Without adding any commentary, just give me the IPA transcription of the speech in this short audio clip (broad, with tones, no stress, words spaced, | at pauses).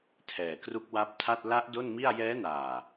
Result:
tʰɛː˨˩kru˦˥k̚wa˦˥p̚tʰa˥˩t̚ la˦˥ʔ do˥˩nmi˥˩a̯ jɛː˦˥naː˨˩